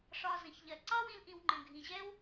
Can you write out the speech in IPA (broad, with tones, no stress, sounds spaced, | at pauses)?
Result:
ʂ ɒ˧ z ə̃˩ ç ʎ ɜ˩ ǀ ɑ˥ w ĩ˧ l ʔ ĩ˧ w ŋ͡ǃ ə̃˩ ɡʱ ĩ˩ ʑ ɛ˥ w